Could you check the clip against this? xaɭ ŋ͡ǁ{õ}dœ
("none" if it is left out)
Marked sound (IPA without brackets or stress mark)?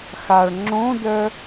õ